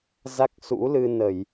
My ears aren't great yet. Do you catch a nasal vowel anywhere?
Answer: no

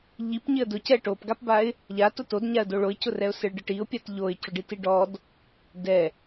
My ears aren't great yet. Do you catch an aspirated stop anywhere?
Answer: no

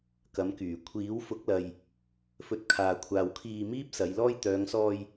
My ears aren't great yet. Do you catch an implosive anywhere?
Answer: no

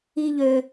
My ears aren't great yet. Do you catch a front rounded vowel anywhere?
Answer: yes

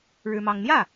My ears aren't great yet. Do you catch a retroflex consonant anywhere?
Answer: yes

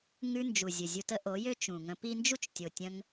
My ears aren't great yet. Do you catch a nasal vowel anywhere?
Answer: yes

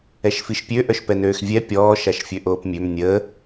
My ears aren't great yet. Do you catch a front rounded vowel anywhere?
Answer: yes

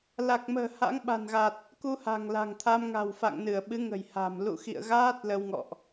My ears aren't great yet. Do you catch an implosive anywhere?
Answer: yes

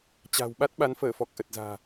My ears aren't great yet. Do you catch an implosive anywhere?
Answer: yes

